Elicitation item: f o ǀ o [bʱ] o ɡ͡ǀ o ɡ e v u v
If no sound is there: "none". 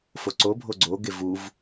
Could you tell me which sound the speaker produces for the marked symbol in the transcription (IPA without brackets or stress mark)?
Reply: bʱ